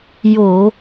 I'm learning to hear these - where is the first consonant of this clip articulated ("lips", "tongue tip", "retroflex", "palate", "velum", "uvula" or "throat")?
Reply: palate